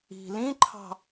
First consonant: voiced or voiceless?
voiced